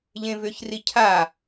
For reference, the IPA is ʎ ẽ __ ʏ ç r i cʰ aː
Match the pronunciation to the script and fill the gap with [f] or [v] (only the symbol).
v